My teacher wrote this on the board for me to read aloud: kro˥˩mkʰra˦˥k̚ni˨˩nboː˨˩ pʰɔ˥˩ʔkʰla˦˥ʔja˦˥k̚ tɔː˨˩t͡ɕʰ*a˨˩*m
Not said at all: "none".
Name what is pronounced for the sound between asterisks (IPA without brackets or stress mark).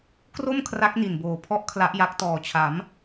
a˩˦